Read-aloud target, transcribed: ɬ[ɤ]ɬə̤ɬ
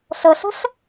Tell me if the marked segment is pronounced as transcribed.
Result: yes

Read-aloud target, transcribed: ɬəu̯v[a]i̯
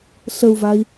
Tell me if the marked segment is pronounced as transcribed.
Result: yes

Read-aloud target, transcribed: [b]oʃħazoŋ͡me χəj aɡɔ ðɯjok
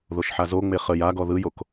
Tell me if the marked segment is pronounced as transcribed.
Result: no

